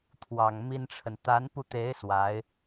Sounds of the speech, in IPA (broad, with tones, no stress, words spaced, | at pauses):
t̪ʰwɑ˨˩ŋmi˥nʈ͡ʂʰə˨n t̪a˧˥npu˧t̪e˧˥ɪ̯ swa˧˥ɪ̯